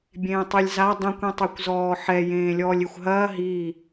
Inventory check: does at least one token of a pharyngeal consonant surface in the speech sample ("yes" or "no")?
yes